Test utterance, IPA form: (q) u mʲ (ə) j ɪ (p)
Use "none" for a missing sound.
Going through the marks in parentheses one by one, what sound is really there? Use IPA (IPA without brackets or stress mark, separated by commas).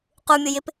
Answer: q, ʊ, p